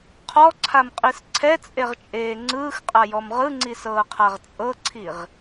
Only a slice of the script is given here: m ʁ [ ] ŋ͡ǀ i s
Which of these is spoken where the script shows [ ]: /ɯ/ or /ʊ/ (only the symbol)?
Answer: ɯ